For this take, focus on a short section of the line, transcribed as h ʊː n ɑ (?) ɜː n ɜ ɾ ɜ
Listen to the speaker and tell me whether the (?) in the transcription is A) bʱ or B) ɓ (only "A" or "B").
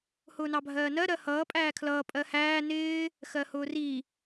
A